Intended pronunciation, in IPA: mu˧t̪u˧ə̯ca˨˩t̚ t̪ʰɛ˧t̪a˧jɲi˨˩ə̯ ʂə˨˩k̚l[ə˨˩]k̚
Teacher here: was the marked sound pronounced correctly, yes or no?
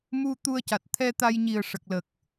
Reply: yes